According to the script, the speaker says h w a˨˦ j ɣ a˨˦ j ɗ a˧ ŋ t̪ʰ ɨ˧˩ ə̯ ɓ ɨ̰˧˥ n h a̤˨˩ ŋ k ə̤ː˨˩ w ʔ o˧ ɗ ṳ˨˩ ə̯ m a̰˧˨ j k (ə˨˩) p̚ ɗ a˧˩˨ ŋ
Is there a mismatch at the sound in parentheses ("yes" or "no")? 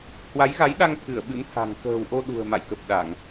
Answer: no